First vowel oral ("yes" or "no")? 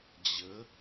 yes